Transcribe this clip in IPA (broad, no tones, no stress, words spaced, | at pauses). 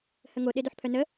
həŋo ɗedoħpʰœnə